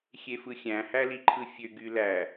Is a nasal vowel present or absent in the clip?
present